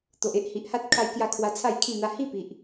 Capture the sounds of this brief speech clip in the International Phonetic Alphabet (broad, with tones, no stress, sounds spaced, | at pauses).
t̪ o˨ ʔ e˦ ʔ h i˨ ʔ h a˦ t̚ kʰ a˧ j k j a˧ kʰ w a˧ t͡sʰ a˥˧ j kʰ ĩ˥˧ n̪ a˦ h i˥˧ p i˨ ʔ